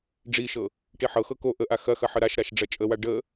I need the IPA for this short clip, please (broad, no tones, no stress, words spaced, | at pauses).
ɖ͡ʐiʃɤ | ʈiħɤxɤ ko ʔəʔa xɐxɐ ħəɾaʃɾaʃ ɖ͡ʐɐt͡ʃʼəwa ɖə